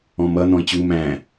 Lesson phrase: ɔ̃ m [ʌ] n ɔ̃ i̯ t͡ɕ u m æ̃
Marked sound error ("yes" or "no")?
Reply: no